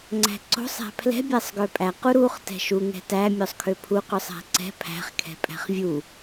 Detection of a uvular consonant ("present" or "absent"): present